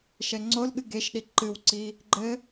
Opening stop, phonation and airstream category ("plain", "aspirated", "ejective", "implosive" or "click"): click